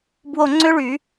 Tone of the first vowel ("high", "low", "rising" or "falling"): falling